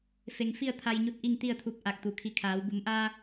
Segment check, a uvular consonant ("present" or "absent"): absent